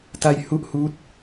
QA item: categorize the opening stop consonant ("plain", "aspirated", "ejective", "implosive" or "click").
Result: plain